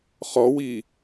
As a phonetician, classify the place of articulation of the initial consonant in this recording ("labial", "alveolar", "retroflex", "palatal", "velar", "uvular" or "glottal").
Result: uvular